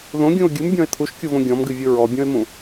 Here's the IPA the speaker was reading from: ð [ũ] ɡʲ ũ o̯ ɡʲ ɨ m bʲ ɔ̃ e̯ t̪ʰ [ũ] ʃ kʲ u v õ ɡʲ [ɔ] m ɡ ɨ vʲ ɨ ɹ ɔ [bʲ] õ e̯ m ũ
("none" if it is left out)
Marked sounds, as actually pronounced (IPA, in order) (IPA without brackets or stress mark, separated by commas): õ, u, ɔ̃, bʲ